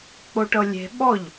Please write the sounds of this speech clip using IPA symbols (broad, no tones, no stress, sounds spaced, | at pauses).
k͡p o ʈ ɤ lʲ e̤ ɓ ɔ ʎ